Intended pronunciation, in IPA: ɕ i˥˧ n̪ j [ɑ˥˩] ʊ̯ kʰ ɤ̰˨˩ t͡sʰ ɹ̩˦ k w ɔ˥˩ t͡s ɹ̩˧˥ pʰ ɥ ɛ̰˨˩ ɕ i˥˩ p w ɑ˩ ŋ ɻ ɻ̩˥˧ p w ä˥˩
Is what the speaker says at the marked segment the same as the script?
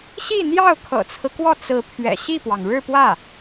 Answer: yes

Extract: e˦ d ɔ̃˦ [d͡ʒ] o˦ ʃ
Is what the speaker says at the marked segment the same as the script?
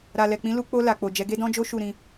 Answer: yes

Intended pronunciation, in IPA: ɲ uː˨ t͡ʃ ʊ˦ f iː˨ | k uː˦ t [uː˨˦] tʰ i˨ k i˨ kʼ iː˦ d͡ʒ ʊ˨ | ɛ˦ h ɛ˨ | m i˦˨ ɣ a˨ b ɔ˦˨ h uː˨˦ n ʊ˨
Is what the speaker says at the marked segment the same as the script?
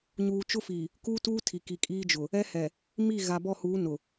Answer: no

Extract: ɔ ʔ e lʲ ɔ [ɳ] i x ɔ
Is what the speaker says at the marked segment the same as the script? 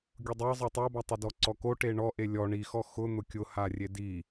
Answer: yes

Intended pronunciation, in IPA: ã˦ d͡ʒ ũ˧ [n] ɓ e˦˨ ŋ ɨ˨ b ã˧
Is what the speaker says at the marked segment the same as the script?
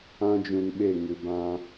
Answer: yes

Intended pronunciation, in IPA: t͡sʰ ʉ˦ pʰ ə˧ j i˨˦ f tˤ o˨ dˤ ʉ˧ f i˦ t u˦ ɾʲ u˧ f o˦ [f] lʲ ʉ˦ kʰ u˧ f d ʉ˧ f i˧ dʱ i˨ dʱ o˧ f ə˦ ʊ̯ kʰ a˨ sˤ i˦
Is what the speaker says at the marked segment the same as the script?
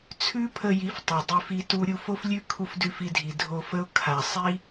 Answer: yes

